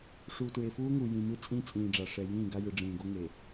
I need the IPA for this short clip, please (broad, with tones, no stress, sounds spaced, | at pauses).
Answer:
ʂ uː˨ t ɹ e˨ f uː˦ ŋ u˨ j ĩ˨ m ɯ˦ t͡sʼ ĩ˦ t͡sʼ ĩː˨ ɖ͡ʐ a˨ ʂ ɛ˨ j ĩː˦˨ ɡ a˦ j ɯ˨ ɖ͡ʐ ĩː˨ ɡ o˦ ŋ e˨